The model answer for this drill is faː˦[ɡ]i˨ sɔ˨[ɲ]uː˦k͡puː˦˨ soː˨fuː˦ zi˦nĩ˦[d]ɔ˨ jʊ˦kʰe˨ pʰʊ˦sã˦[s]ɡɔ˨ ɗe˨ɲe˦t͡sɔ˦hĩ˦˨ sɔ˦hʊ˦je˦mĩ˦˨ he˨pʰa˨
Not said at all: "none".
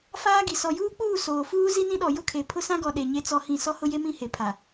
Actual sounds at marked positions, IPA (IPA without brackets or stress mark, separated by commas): ɡ, j, ɗ, none